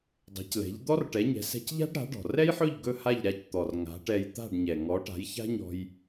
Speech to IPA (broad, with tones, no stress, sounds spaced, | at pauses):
dˤ ɛ̤˩˥ c l ɛ̤˩˥ ʎ d̪ ɔ˥ r ʈ ɛ˩˥ ɲ ɛ̤˩˥ s ɛ̤˧ c ʎ a̤˥ ɖ ɾ a̤˩˥ ɖ ɔ̤˩ r ɛ˥ j ħ ɵ˥˩ ʎ ɡ ɵ˥˩ h a˥˩ ʎ ɾ a˧ c t̪ ɔ˩ r ŋ a̤˩˥ ʈ ɛ˧ j t̪ a̤˥˩ ɖ ɲ ɛ˩ ŋ ɔ˩˥ ʈ a̤˩˥ j ç a̤˥ ɲ ɔ̤˧ j